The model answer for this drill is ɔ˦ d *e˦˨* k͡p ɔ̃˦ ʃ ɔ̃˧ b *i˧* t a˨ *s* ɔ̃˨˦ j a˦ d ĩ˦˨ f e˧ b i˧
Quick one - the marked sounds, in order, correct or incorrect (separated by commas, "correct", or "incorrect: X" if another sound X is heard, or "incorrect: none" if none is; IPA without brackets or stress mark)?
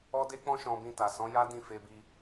incorrect: e˦, incorrect: ĩ˧, correct